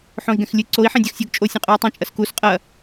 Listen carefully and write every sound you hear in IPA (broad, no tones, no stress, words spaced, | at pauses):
ħõi̯ɡɛ̃xlʲɨ ǀoi̯ ħẽdʲɐxsʲoɡ t͡ʃʼo sʲẽqʼui̯tˤɛ̃ t͡ʃʼɐskus qʼɐ